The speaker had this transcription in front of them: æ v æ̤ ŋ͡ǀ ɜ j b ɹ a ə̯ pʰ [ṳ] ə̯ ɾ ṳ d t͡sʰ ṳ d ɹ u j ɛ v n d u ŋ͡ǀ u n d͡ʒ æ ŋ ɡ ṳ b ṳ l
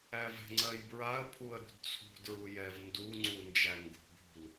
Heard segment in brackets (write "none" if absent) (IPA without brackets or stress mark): u